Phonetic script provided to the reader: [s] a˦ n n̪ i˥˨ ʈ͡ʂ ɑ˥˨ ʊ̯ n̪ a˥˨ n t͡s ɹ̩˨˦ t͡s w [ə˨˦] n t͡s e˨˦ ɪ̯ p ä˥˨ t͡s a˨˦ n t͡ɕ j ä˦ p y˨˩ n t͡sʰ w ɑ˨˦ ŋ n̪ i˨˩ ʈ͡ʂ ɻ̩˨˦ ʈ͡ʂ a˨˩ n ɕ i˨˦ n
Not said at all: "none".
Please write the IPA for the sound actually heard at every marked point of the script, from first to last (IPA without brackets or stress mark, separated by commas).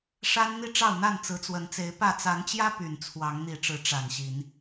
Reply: ʂ, ə˨˦